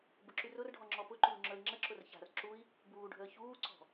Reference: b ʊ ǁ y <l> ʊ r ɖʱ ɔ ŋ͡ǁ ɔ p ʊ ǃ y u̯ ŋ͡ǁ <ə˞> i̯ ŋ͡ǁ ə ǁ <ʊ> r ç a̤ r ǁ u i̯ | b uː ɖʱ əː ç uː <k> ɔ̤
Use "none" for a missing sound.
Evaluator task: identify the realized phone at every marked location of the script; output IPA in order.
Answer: r, ə˞, ʊ, ǀ

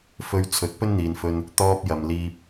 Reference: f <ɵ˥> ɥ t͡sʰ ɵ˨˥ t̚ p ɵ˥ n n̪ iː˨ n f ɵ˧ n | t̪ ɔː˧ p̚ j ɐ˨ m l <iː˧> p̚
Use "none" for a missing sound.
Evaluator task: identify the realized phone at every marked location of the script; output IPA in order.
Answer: ɵ˧, iː˧

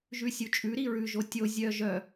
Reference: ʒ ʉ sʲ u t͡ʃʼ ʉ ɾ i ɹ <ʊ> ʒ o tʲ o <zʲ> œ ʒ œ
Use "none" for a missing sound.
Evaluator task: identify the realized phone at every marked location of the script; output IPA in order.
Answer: ʉ, zʲ

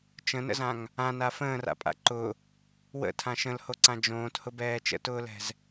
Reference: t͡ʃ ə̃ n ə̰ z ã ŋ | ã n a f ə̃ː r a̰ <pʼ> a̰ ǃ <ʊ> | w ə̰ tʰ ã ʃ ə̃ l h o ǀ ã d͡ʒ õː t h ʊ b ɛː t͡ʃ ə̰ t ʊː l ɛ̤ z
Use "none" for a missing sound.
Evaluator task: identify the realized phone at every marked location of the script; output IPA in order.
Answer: pʼ, ʊ

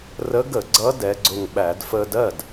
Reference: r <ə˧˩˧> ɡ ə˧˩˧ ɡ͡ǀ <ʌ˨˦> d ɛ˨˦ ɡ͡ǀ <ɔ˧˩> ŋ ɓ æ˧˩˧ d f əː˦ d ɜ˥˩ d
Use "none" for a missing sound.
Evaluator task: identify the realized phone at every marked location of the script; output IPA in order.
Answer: ə˨˦, ʌ˨˦, ʊ˧˩

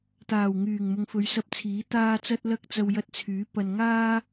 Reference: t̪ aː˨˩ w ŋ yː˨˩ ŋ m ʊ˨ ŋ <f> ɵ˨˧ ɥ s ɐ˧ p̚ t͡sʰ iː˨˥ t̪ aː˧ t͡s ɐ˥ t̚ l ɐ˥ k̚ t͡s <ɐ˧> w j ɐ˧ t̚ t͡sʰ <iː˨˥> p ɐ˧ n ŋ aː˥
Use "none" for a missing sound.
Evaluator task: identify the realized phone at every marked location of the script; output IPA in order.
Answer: f, ɐ˧, yː˨˥

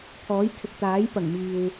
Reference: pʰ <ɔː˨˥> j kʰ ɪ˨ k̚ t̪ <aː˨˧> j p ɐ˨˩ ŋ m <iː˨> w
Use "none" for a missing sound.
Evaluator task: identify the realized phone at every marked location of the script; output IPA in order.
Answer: ɔː˨˥, aː˨˥, iː˨

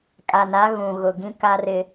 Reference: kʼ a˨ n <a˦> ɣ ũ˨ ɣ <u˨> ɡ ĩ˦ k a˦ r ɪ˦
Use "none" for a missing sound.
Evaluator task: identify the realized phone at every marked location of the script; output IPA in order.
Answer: a˦, ʊ˨

